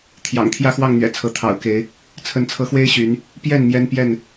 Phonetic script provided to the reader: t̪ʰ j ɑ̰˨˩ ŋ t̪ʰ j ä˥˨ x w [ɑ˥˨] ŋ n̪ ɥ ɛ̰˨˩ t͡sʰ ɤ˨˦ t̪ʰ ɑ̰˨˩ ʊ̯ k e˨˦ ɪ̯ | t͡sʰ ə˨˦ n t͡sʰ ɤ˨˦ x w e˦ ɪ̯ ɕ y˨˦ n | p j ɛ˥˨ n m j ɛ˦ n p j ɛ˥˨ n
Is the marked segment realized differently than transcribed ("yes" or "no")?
no